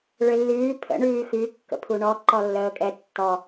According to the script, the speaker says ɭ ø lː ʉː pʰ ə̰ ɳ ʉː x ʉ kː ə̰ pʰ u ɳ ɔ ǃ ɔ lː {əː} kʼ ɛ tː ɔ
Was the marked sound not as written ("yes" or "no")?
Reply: no